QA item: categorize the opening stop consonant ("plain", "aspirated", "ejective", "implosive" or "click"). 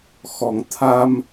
aspirated